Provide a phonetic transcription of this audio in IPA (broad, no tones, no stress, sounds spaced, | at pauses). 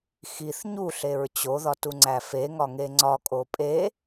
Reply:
x i θ ɲ u ɬ e ɹ t͡ɕ o ð ɒ t u ŋ͡ǀ æ f e ŋ ɒ ŋ e ŋ͡ǀ ɒ kʼ o pʼ e